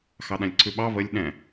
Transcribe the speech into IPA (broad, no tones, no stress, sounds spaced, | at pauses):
x ɑ ɗ ã lʲ ǀʰ ʉ ɓ ɑ β ə lʲ ɗ ɛ̃